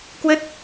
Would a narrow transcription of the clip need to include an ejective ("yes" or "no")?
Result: no